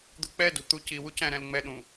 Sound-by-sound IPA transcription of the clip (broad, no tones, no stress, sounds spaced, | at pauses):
d̪ ṳ k͡p ɛ d ṳ t̪ u c i w u c æ̃ ɾ æ̃ l ŋ͡m ɛ ɗ ũ